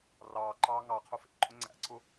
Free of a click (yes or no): no